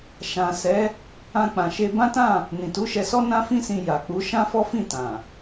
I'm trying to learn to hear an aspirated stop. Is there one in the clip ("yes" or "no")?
no